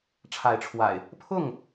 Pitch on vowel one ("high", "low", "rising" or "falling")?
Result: rising